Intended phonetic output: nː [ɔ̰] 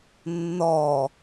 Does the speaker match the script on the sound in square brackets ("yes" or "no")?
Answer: no